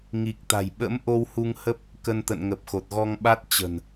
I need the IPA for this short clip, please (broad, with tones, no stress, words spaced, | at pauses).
ŋi˨˩k̚t̪a̤˨˩j ɓə̰˧˥m ʔo˧whu˧ŋhə˦˥p̚ | kə˧nt̪ə̰˧˨nŋə˨˩p̚ xo˨˩t̚ɣɔ˧ŋɓa˦˥t̚ t͡ɕə̤˨˩n